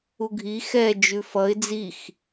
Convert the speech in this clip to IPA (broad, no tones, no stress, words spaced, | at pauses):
uɡʱi xɛ d͡ʒʉfʌɪ̯ d͡zix